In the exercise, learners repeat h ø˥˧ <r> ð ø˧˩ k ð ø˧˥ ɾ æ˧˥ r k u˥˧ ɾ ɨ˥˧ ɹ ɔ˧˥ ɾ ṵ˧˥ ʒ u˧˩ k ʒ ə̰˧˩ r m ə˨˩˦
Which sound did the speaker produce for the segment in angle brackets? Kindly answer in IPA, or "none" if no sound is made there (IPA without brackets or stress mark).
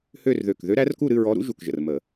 r